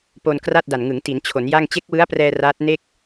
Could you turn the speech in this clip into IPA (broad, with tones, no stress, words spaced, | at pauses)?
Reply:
po˧nkra˥˩t̚ da˨˩nŋɯ˩˦ŋ ti˩˦nt͡ɕʰo˩˦nja˥˩ŋ t͡ɕe˦˥k̚wɯ˦˥a̯prɛː˧ raː˦˥t̚ ne˥˩k̚